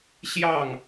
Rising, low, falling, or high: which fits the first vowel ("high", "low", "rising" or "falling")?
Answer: falling